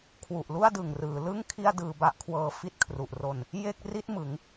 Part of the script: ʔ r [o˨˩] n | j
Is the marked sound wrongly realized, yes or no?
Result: yes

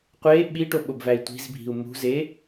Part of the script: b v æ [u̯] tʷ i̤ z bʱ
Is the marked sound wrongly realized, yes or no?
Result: yes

